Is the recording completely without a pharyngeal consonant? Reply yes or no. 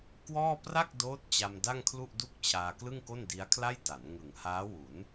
yes